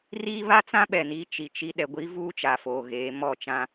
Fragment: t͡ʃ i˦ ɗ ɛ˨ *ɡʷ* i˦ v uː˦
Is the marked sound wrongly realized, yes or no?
no